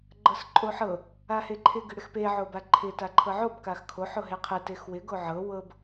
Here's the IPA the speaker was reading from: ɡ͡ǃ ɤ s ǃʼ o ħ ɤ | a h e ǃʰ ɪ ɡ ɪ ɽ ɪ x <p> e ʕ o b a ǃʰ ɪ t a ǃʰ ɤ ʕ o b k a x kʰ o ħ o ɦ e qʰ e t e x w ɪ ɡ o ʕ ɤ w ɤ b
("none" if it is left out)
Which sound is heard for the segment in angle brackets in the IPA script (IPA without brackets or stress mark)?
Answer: p